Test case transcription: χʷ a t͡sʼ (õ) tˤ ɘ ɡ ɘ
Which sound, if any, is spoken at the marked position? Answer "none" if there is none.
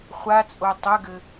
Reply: o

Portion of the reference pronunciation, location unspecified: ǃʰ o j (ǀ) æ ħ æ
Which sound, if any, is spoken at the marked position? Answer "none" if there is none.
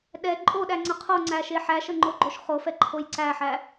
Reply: ǀ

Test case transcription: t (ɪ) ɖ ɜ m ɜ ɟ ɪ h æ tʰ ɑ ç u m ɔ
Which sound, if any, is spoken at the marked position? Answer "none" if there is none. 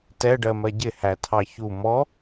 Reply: ɛ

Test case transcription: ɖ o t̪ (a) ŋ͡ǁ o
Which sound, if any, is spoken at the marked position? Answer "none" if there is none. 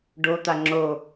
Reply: a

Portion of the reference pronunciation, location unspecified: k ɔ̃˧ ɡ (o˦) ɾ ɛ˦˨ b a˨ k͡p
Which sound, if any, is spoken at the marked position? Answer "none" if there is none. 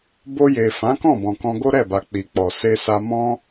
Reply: o˦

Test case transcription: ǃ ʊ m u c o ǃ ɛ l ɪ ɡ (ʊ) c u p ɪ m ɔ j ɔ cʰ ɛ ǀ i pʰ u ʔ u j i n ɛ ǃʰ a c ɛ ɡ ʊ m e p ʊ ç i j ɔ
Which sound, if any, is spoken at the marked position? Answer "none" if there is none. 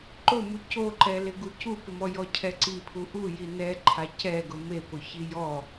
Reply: u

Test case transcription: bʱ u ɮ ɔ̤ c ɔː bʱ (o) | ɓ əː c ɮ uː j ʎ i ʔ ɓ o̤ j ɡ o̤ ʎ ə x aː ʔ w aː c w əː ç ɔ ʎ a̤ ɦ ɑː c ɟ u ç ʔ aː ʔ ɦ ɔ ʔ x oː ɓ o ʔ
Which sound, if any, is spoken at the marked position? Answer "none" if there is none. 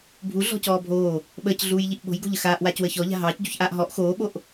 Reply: oː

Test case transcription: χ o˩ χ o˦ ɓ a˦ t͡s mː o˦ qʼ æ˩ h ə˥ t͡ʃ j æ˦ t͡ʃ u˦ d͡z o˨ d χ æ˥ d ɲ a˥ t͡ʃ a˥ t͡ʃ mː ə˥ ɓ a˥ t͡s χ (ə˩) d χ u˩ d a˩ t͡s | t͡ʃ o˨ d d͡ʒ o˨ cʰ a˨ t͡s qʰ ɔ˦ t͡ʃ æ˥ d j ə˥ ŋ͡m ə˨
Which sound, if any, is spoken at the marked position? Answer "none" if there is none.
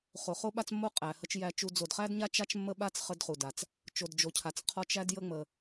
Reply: ə˦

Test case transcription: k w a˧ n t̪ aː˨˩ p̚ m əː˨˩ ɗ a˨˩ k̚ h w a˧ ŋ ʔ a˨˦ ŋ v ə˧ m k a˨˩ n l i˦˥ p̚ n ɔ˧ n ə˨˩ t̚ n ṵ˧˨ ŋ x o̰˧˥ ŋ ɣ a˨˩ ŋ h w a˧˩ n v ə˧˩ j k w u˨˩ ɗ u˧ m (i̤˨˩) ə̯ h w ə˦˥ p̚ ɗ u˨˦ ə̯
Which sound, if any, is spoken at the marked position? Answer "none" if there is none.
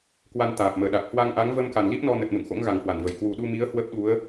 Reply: i˨˦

